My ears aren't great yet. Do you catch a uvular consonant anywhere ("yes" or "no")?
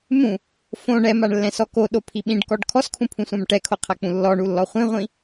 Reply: yes